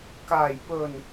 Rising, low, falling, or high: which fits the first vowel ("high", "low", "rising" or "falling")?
low